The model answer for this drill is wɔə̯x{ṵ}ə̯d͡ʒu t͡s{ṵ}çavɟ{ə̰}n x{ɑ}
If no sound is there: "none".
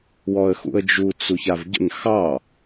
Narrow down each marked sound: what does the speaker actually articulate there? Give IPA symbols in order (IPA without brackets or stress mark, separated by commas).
ṵ, u, ə̰, ɑ